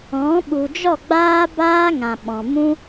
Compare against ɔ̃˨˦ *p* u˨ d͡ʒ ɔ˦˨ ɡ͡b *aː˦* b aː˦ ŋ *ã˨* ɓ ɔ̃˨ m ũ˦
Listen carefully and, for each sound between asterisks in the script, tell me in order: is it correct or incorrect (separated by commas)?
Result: incorrect, correct, correct